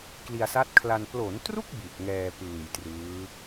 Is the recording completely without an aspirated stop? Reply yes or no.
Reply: no